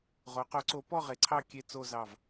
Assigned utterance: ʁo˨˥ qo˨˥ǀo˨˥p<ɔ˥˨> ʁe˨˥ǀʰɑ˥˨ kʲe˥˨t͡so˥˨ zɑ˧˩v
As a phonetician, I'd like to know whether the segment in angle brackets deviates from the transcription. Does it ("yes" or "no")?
no